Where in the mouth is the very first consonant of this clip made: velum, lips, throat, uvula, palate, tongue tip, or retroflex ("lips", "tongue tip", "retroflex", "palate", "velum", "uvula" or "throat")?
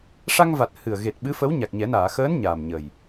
retroflex